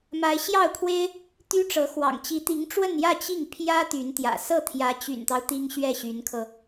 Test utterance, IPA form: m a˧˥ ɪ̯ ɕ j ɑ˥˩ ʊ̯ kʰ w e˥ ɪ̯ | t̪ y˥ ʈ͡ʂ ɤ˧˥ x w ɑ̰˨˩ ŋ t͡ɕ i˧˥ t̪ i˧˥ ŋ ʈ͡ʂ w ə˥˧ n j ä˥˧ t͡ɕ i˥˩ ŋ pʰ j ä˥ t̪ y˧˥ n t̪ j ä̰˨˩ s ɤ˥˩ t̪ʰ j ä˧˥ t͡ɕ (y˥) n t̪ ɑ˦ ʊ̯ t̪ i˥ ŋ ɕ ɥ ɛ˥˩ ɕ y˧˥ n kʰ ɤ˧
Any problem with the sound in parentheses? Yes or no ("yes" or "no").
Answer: yes